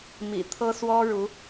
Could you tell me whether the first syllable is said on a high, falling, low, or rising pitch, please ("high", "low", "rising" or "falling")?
low